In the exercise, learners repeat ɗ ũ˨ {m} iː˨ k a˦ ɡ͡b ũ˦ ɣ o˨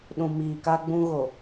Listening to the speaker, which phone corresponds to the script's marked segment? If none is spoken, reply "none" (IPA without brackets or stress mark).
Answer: m